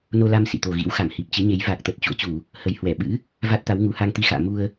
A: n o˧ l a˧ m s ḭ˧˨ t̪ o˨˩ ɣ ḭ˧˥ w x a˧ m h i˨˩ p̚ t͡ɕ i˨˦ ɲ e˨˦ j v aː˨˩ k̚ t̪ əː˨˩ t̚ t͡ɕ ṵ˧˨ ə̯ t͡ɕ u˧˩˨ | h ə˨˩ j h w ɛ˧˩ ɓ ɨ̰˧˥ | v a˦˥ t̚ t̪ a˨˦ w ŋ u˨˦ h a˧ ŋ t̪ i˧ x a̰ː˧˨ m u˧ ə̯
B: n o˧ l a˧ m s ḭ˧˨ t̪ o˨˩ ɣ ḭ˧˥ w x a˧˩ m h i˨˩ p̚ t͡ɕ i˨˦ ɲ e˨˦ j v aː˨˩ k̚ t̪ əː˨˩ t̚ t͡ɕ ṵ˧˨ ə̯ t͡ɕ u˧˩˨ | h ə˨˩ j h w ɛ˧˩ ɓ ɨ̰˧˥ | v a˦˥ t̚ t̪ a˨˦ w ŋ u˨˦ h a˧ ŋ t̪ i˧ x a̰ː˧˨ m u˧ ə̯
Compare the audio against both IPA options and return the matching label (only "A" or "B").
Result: B